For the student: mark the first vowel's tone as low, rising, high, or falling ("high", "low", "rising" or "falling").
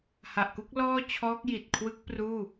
low